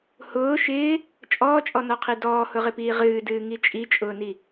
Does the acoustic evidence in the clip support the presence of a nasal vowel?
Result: no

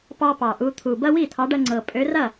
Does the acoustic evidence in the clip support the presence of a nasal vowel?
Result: no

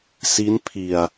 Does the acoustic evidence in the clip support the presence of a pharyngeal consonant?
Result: no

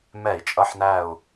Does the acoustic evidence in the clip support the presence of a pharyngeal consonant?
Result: yes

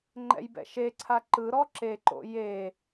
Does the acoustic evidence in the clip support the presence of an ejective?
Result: no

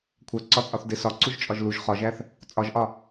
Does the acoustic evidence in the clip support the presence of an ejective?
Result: yes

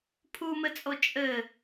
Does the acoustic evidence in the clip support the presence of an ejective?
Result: yes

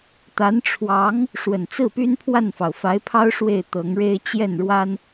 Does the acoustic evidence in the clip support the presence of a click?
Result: no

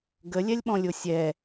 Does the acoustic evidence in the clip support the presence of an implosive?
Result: yes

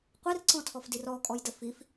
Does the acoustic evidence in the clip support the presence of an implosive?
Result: no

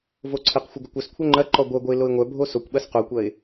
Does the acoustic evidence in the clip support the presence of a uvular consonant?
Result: yes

